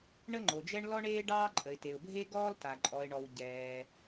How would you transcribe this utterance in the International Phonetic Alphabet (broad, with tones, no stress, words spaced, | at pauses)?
ɳə˦ŋ͡ǃo˩d͡ʒɛ˦ɳ lɔ˦ɳeː˦ɖɑː˦ ǃʼə˩ɪ̯te˩ʊ̯bʱe˦ ɡɔː˦lta˩ ǃʼɔ˩ɪ̯ɳɔ˩w ɟɛː˩